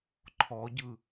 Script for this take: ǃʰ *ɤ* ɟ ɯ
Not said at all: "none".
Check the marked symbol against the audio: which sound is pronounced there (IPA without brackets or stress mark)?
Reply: ɔ